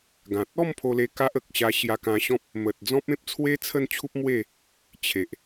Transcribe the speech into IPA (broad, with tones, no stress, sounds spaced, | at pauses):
ɡ ã˨ t̚ ɔ˥˧ m pʰ o˧ l e˧ k a˦ ʔ ə˨ k̚ ɕ a˧ ɕ j a˧ k ã˧ ɕ ɔ̃˦ p̚ | m ə˨ t̚ d͡z ɔ̃˦ p̚ ẽ˦ p̚ t͡sʰ w e˦ t͡sʰ ə˥˧ n t͡ɕʰ u˦ p̚ m w e˥˧ | t͡ɕʰ e˨ ʔ